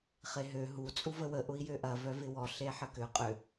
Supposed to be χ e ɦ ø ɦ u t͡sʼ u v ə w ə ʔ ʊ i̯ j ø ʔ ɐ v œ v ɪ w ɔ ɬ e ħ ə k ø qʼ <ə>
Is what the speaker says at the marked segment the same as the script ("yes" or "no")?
no